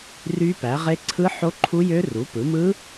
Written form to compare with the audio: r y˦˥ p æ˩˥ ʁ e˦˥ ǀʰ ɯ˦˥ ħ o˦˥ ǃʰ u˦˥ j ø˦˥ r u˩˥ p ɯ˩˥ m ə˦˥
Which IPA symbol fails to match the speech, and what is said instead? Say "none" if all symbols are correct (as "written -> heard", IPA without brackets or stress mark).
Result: ə˦˥ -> ɯ˦˥